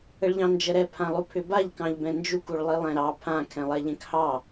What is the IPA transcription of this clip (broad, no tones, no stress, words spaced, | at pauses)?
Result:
əɭʎɑ̃nd͡ʒəɾɛ pʰãlˠupʰʏbaʎ kɑ̃ʎbɛ̃nd͡ʒuk uɭlˠilˠɛ̃ɾɑ pʰã kʰɛ̃lˠɛʎɛ̃khɑ